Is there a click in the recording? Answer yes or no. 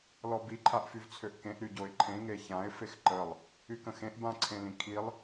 yes